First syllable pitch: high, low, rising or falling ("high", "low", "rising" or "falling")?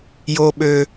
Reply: low